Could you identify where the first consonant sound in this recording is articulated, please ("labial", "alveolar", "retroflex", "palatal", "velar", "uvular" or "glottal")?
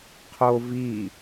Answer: uvular